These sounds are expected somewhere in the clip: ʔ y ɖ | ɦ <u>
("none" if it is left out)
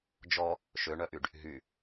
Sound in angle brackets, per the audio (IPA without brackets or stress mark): y